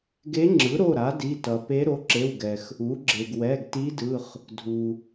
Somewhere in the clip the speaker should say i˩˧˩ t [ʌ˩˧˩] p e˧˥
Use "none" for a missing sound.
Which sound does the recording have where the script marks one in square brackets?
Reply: ʌ˩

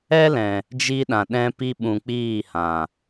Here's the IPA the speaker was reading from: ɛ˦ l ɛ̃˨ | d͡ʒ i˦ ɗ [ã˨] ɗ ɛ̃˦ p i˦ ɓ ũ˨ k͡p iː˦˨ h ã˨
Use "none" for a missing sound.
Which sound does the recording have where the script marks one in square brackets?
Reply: ã˨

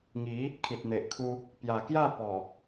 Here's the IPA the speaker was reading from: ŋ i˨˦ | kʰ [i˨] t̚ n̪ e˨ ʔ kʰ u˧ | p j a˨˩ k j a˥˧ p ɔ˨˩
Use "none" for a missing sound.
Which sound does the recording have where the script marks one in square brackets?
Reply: i˨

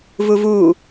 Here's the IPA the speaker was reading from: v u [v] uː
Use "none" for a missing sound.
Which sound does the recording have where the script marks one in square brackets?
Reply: v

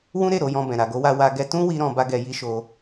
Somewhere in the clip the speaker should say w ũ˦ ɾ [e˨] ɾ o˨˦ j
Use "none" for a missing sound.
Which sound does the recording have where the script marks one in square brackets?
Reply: e˦˨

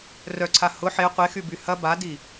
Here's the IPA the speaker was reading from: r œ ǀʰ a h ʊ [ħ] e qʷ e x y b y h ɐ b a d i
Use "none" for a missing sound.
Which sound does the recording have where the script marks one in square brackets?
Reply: ħ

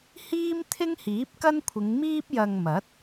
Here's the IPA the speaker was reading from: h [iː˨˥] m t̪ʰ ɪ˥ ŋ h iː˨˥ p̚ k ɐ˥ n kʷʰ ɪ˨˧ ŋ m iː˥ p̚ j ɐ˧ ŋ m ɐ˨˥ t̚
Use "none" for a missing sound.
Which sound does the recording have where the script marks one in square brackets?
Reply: iː˥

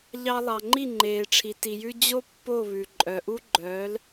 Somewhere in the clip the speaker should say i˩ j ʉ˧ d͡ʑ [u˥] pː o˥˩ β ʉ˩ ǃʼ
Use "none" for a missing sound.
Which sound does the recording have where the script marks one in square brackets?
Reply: o˥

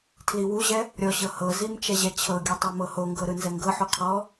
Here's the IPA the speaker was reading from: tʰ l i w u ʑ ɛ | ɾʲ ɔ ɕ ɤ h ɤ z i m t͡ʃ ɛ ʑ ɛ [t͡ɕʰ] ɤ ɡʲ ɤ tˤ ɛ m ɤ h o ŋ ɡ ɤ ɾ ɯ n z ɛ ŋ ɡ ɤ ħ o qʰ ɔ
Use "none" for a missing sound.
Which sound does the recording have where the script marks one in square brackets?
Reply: t͡ɕʰ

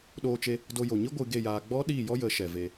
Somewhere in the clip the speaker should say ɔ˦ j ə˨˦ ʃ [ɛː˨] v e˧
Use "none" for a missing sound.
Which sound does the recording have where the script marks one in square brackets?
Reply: ɛ˨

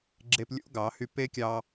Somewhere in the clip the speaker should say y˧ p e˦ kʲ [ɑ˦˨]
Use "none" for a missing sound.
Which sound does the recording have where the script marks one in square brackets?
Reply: ɑ˧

